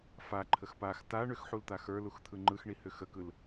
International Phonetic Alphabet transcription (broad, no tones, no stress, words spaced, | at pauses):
faǃʰəx pax ta ɳʏxħult̪a xə˞luxt̪ʰɯ ŋ͡ǃɯxɳihʏ xəkɯl